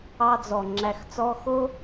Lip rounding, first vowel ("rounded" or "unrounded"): unrounded